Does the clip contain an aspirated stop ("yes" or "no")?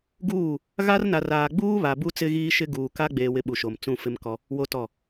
no